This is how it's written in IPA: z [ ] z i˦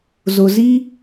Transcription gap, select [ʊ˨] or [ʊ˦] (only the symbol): ʊ˨